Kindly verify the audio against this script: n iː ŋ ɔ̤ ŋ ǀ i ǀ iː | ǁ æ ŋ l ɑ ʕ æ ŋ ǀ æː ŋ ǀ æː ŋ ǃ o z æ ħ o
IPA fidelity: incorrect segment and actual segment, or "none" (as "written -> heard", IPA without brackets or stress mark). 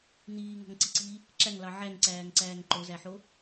none